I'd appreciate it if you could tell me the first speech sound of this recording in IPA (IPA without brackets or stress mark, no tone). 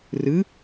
r